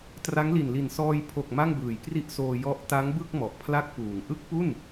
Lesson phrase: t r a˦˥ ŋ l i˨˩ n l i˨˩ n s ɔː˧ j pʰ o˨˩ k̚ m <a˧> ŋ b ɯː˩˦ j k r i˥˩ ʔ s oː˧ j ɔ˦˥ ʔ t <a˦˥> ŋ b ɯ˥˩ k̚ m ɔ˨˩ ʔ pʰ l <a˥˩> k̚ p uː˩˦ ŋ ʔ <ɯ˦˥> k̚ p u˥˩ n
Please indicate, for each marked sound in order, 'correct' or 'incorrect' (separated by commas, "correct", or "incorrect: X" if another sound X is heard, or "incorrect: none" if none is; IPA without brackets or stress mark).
incorrect: a˥˩, correct, correct, correct